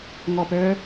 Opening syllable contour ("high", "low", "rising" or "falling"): low